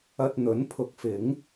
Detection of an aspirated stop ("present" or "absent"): present